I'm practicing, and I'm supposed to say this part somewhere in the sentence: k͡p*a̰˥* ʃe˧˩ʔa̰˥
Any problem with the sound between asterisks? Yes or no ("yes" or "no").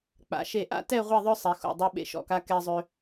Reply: yes